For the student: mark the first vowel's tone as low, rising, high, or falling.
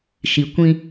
low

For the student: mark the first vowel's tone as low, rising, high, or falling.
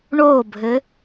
falling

